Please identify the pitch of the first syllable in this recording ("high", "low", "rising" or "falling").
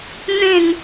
falling